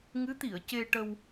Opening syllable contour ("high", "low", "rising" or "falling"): rising